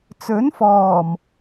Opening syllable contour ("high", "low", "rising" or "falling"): rising